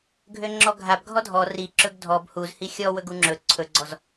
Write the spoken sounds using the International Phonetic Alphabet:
ɡʱ ø ŋ͡ǁ ɔ ɡʱ a b ɡʱ ɔ dʱ ɔ r i ǁ ɵ ɡ dʱ ɔ b h u z h i xʲ ɔ w ɵ ɡ u ŋ͡ǁ ɵ ǀʰ ɵ ɡ͡ǀ ɔ z

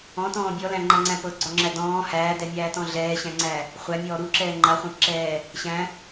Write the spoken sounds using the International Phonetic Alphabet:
ɔ̃ t ɔ̃ː bʲ ɔ l æ̃ ŋ͡ǃ a ŋ͡ǀ æ̃ p ɤ ɡ͡ǀ ɔ ŋ͡ǁ æ d ɔ̃ː h æː d ɛ mʲ æː t ɔ̃ ɮ ɛː ɕ æ̃ ŋ͡ǀ æ | χʷ æ mʲ ɔː ɾ u ǁ ɛː ŋ͡ǃ a χʷ æ̃ p ǁ ɛː | ɕ æ̃

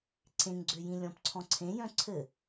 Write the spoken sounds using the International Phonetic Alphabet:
ǀʰ ẽ ŋ ɡ͡ǀ ø j ĩ lʲ ɔ̃ p ǀʰ ɔ̃ ǀʰ ẽ j œ̃ ǀʰ ɘ

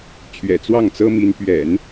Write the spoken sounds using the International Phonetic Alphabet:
t͡ɕʰ ɥ ɛ̰˨˩ t͡s w ɑ˥˩ ŋ t͡s ɤ˥ m i˧˥ n p ɥ ɛ̰˨˩˦ n

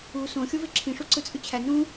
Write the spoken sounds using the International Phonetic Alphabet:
u s õ xʲ o v e ǁʰ ĩ ʂ u ǀ ɯ t͡sʼ y t͡ɕʰ æ n ũ

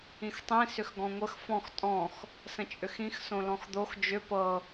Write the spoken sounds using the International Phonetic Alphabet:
ĩ x tˤ ĩ s ʏ x ɡ ɔ̃ ŋʷ ə x f ɔ̃ x tʼ ɔ̃ x | s ə̃ t͡ʃʼ ʏ x ĩ x s õ l ɔ̃ x d̪ o x d͡ʒ ʏ p ɤ

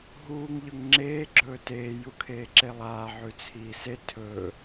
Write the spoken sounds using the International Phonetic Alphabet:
ɦ uː ŋ ʎ ɵ ŋ ŋ͡ǁ eː ɡ͡ǁ ɵː t eː j u kʰ eː ǁ e lˠ aː ʕ ʉ t͡sʰ iː s e tʰ ɵː

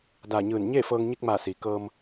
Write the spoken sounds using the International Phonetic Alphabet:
d aː˧˩ ɲ ɯː˧˩ n ɲ eː˥˨ f ɤː˧ ŋ ɲ i˧ k̚ m aː˧˩ s i˩ k ɤː˧ m

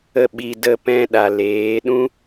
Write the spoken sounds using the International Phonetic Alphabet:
ə˦˨ ɓ i˧ d ə˧ p ɛ̃˧ ɗ a˨ l eː˨˦ ɗ ũ˦

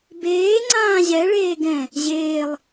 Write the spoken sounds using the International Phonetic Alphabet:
b eː ŋ͡ǀ ãː ʑ ɛ ɭ eː ɡ ɛ̃ | ʑ eː lˠ

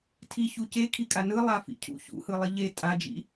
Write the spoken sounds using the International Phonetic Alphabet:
tʰ i ç u c e kʰ i kʼ a n ɯ lˠ a f ḭ cʰ ṵ ç ṵ h ɯ lˠ i ʎ e tʼ a d͡ʒ ḭ

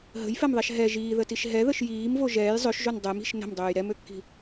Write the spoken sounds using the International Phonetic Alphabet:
ɦ ə̤ j f ɛ m ðˤ ɛ ʃ ɦ ɛ ʒ iː ð ə t i ʃ ɦ ɛ ð ə ʃ j iː m v o ʒ ɛː j zˤ ø ʃ ʒ o n dˤ ɛ m i̤ ʃ n ə̤ m dˤ øː j ɾ ɛ m ø kː i̤

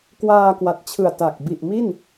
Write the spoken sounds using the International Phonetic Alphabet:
k w aː˧ k w a˨˩ t̚ t͡ɕʰ ɯ˨˩ a̯ t a˨˩ k̚ b i˨˩ ʔ m i˥˩ n

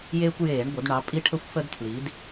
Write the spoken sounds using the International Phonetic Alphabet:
j eː˦ kʷ j eː˧˩˧ ɳ ɡʷ ə˩˧ d ɳ ɑ˩˧ pʼ i˦ ʈʰ ə˦ xʷ f ə˦ d tʰ l i˩˧ d

